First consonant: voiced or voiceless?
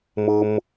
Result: voiced